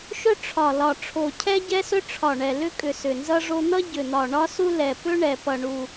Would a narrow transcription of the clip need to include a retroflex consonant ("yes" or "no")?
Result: yes